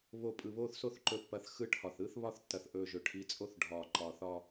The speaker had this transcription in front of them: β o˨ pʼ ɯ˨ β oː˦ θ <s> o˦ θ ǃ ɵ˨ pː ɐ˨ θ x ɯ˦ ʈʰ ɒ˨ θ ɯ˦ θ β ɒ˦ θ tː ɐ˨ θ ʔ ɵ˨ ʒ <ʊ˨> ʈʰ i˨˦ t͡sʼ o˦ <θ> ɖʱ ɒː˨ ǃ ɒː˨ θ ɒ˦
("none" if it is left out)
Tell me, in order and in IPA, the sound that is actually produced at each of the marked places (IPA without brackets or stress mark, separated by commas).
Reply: s, ɵ˨, θ